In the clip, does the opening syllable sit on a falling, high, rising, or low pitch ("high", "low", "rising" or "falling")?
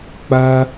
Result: high